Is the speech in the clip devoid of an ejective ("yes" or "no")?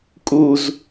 no